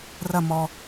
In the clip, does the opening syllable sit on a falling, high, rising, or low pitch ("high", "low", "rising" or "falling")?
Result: falling